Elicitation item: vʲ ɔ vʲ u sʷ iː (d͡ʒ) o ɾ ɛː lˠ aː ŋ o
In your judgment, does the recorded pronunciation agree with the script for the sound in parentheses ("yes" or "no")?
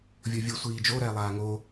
yes